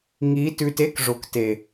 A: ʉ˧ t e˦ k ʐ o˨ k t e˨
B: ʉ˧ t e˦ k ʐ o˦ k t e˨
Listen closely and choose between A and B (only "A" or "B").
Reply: A